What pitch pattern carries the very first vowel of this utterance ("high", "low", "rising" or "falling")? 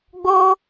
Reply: high